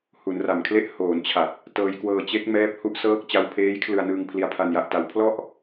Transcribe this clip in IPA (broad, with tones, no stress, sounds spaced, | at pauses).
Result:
h u˩˦ n r a˨˩ m kʰ l e˥˩ ʔ h oː˩˦ n t͡ɕʰ a˨˩ t̚ | t ɤː˧ j k w ɤː˧ t͡ɕ e˦˥ k̚ m ɛː˦˥ p̚ h u˦˥ ʔ s ɤː˦˥ k̚ t͡ɕ a˧ w pʰ eː˦˥ j kʰ l ɯ˧ a̯ n ɯː˧ ŋ pʰ l i˧ a̯ pʰ a˧ n j a˦˥ ʔ t a˦˥ w pʰ l ɔ˥˩ ʔ